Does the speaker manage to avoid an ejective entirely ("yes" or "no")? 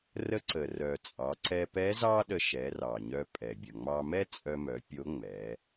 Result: no